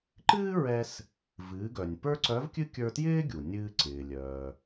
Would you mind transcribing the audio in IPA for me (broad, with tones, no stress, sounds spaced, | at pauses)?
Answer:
ǃ ɨː˥ ɹ ɛ˧ s | v ɨː˩˧ ɡ œ˩ nʲ p ə˞˥ ǀ œ˧˥ v kʲ ɨ˥ kʲ ə˞˧ t j ɪː˥ ɡʲ u˩ nʲ ɨː˧ ǀ ɪː˩ lʲ œː˩